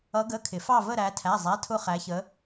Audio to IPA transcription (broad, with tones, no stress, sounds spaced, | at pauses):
ʌ˧˥ ɡ ə˧˥˧ kʰ ɪ˨˩˦ f ɑ˥˧ v ə˥˧ ɾ æ˧˥ tʰ æ˧˥˧ zˤ æ˧˥˧ tʰ ʊ˥˧ χ æ˧˥ ç ə˧˥